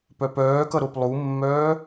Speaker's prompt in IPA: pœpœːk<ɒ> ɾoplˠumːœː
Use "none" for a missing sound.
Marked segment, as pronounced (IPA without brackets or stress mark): ʌ